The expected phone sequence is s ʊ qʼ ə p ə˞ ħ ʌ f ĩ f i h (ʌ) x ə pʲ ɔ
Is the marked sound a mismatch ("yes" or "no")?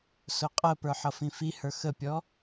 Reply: yes